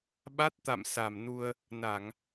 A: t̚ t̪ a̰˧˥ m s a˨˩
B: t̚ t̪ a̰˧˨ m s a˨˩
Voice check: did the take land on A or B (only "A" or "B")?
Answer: B